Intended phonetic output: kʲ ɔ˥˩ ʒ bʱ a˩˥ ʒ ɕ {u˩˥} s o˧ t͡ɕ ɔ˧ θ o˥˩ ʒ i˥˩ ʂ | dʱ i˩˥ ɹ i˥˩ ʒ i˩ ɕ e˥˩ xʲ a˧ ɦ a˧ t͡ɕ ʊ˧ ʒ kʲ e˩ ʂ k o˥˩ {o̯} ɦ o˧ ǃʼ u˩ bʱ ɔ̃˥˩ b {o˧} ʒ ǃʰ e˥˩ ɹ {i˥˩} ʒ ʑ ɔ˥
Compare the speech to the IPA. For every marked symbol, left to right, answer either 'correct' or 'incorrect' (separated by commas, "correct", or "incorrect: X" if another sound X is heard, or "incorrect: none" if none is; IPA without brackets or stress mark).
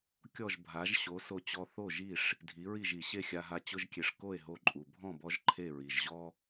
incorrect: o˩˥, incorrect: e̯, incorrect: ɔ˧, incorrect: i˩